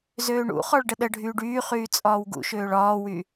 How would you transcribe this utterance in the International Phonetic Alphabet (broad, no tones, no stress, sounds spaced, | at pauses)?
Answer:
z øː ɳ ṵ χ ɔ ɭ ɖ ə ɗ ə ɖʱ yː ɖ yː χ yː t͡sʼ ɒː w ɡ ṵ ʃ øː ɭ ɒː w y